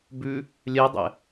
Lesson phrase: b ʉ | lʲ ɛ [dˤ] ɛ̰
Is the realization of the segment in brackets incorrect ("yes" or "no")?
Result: no